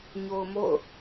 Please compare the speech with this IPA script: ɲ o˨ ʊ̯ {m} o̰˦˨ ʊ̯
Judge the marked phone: correct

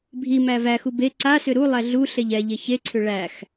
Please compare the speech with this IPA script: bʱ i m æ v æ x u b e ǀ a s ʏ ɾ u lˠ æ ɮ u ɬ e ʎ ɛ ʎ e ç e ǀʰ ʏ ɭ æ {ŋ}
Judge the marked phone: incorrect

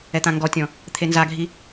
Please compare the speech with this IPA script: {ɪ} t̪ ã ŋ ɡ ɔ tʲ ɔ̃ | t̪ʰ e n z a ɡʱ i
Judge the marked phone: incorrect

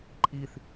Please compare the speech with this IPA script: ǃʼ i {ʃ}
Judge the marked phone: incorrect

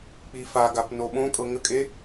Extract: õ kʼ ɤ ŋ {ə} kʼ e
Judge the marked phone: correct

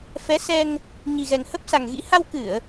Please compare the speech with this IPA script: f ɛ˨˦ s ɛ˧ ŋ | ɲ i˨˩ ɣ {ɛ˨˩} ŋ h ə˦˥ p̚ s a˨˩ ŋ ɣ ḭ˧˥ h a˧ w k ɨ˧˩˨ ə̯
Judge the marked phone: correct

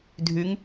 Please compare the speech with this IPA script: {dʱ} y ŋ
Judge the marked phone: correct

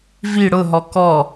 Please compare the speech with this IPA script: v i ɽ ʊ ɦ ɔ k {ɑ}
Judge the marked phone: incorrect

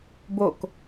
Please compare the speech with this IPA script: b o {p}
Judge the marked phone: incorrect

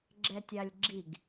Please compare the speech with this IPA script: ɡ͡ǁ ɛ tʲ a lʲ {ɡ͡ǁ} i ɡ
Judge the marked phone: correct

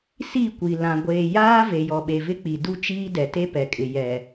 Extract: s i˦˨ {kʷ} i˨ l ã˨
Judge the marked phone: correct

